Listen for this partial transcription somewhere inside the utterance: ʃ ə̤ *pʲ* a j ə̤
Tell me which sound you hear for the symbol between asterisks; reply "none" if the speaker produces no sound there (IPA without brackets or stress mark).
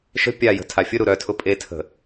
pʲ